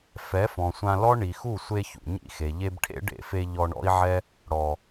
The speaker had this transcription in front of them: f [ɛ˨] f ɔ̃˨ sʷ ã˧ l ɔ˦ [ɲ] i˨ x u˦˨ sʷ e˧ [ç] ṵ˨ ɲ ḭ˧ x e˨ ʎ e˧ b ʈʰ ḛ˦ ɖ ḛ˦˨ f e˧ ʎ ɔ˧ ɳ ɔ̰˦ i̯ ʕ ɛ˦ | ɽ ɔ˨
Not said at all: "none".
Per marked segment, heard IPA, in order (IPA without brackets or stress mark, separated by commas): ɛ˨˦, ɳ, ç